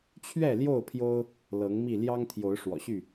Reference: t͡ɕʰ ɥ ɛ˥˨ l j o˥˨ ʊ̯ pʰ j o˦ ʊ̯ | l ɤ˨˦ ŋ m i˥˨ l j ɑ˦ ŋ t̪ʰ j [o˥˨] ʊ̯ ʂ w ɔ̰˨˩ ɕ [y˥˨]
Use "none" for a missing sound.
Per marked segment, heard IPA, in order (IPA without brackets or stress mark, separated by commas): o˨˦, y˥˨